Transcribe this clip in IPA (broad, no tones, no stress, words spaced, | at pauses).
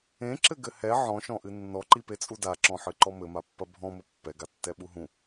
ẽǁɘɡɘ hɛ ʕɔ̃ʃɔ̃ʔɨ nːɔǃipet͡sʼu daǁɔ̃ħɨǃɔ mɘmapːɐ bʱɔ̃mɘ pːɛɡatːɛɓu ɦũ